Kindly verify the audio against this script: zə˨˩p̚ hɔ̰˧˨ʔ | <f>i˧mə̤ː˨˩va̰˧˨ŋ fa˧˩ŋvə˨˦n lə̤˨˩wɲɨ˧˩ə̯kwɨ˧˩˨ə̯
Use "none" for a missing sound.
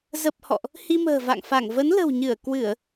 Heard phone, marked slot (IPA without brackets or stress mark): h